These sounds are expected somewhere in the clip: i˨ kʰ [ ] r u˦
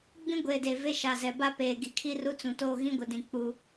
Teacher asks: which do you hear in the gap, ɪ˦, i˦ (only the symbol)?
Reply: i˦